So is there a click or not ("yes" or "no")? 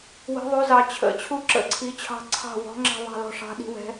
yes